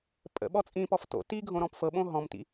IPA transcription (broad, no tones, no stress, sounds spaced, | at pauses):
pʼ ə̰ ɓ ɔ t͡sʼ ĩ p ɔ f t o̰ t i ɡʱ õ ɾ ɔ̃ p f ɤ ɓ õ ɦ ɔ̃ m t ḭ